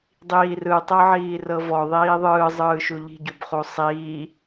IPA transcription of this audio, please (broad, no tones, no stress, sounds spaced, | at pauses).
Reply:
dˤ iː r ɯ tˤ ɤ ʕ iː r ɤ v ɔ ðˤ iː ðˤ ɯː zˤ ɯː ʃ u ʎ i̤ ɟ u b χ u sˤ iː